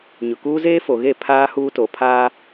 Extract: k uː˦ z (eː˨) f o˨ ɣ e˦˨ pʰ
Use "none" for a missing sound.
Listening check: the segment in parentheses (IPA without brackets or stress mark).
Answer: eː˦